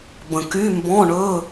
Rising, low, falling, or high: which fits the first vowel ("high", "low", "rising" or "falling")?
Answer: low